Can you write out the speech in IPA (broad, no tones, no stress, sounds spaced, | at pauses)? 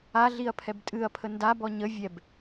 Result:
a ɮ i ɐ̯ pʰ ɛ b tʼ ɨ ɐ̯ pʰ ə n d a b ɔ ɲ ə vʲ ɛ b